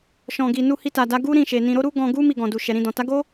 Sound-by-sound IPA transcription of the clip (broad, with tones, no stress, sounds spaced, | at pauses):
ʃ ɔ̃˨ ɡ i˨ n u˧ h i˧ t a˨ d a˨˦ ɡ u˦ ɾ ĩ˦˨ ʃ e˨ n ĩ˨ ɾ o˧ ɾ u˦ ɡ ɔ̃˧ ɡ u˦ m i˦˨ ɡ ɔ̃˨ d u˨ ʃ ɛ˨ ɾ ĩ˧ d ɔ̃˨ t a˨˦ ɡ o˦